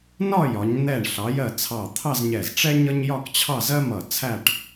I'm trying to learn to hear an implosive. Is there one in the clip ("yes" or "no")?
no